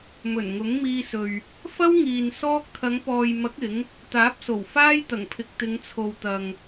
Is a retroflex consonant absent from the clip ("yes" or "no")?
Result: yes